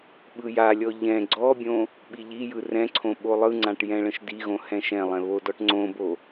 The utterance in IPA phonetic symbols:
ɓ ɯ j a lʲ ɔ ʎ ɛ̃ ɡ͡ǀ ɔ bʲ õ | ɓ i ʎ i j ɯ r ɛ̃ ǀʰ õ ɓ o lˠ ɯ ŋ͡ǀ ã ʈ j ɛ̃ ɭ ə̃ ʃ d i ɣ õ h ɛ̃ ʃ ɛ̃ lˠ ɛ̃ β o d ɔ ʈ ŋ͡ǀ õ b o

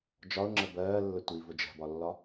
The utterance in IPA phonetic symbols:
d͡ʒ ɒ ʊ̯ ŋ͡ǁ ə b ɜː lː ə tʷ i v ʊ d͡ʒ ɛ̤ b ɒ lː ɒ

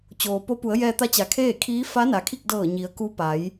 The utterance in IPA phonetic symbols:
t͡ɕ oː˩ p o˧˥ p u˩˧ ə̯ j ɛː˧ t̪ a˧˥ t͡ɕ a˩˧ kʰ eː˥˨ kʰ iː˧˥ f a˧˥ n a˩ kʰ i˥˨ k̚ d ɤː˧˩ ɲ i˩˧ ə̯ k u˧˥ p a˩˧ j

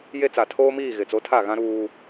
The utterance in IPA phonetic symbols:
j e˦ t͡s a˨ tʰ oː˦ m iː˦˨ ɣ ɪ˨ t͡s o˨˦ tʰ a˦˨ ɣ ã˦ ɾ uː˦

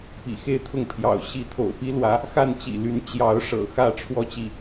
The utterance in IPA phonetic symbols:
p ḭ˨˩ x e˥˧ ɪ̯ t̪ʰ ʊ˥˩ ŋ pʰ j ɑ̰˨˩ ʊ̯ ɕ i˧˥ t̪ʰ o̰˨˩ ʊ̯ p i˥ l w ä˧˥ | x a˥˩ n t͡ɕ ḭ˨˩ l y˧˥ n t͡ɕ j ɑ˧˥ ʊ̯ ʂ ɤ̰˨˩ x ä˥˩ ʈ͡ʂʰ w ɔ˥ t͡ɕ i˥˩

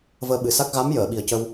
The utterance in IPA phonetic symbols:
v əː˧ ɓ ɨ˨˩ s a˦˥ k̚ ɣ a˧˥ m j əː˨˩˨ ɓ i˨˩ ə̯ c ə˧ w

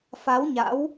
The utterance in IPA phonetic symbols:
f a˨˦ w ɲ a̰˧˥ w

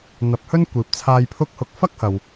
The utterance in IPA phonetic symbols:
n̪ ɐ˨˥ p̚ h ɵ˥ n kʷ iː˨ p̚ t͡sʰ aː˧ j pʰ ʊ˥ k̚ h ʊ˧ k̚ f ɐ˥ k̚ h ɐ˨ w

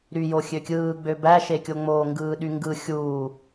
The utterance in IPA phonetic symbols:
ɾ y j o xʲ ø kʲ ɯː ɡ͡b ø b æ ʃ e kʲ o ŋ͡m oː ŋ ɡ ɯː ɗ y ŋ ɡ ɯ xʲ uː

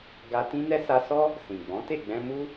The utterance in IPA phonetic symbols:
ɡ a˧ t ĩ˦ n ɛ˦ s a˧ s ɔ˦ | s ĩ˨ ɡ͡b ɔ̃˨˦ t e˦˨ ɡ͡b ɛ̃˧ m u˦

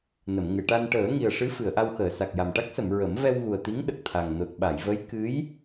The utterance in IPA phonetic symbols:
n ə˨˩˨ m ŋ ɨ˨˩˨ ʈ a˧ n ʈ əː˨˩˦ ŋ i˨˩ ə̯ ʂ ɨ˧˥ f ɨ˨˩˨ ə̯ ʔ a˧ w x əː˨˩˨ s a˨˩ k̚ j a˨˩ m ʈ a˦˥ k̚ s ə˨˩˨ m ɹ ə˨˩˦ m v ɛ˧ w ɣ u˨˩ ə̯ t̪ i˧˥ ŋ ɗ ə˨˩ k̚ t̪ʰ a˨˩ ŋ n o˨˩ t̚ ɓ a˨˩˨ j v ə˧˥ j k ɨ˧˥ j

